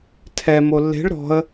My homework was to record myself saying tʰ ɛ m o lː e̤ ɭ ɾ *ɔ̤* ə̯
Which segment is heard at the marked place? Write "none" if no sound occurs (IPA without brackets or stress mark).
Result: ɔ̤